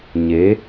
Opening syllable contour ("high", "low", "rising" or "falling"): rising